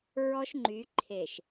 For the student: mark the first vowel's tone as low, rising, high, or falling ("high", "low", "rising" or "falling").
high